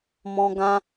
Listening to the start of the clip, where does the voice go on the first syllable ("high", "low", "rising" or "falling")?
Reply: high